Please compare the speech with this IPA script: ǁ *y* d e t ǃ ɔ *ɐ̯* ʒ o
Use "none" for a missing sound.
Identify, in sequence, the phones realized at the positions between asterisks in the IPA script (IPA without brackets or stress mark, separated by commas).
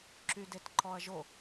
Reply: y, ɐ̯